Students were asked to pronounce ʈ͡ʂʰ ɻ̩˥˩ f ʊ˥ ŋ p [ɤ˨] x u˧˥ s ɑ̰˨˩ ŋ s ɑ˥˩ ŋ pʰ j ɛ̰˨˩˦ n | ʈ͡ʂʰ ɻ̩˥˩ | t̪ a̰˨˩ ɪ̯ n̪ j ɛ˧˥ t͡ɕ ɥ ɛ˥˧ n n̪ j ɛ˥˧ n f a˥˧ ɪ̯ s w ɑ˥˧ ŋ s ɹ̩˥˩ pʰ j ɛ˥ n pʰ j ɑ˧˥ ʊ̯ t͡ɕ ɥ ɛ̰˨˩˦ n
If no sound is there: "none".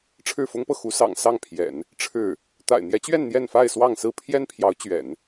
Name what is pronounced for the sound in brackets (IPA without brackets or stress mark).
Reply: ɤ˨